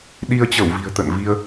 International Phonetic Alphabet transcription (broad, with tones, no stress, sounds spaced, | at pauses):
ɗ i˧ ə̯ t͡ɕ ə˧˩ w v i̤˨˩ ə̯ t̪ ə̰˧˨ n v i˧ ə̯